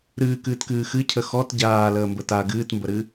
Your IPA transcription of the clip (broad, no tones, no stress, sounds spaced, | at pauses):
ɾ ɨː k ɨː t k ɨː x ɨ cʰ ə x ɔ t ɟ aː l əː m b ə t a ɡ ɨː t m b ə ɾ ɨ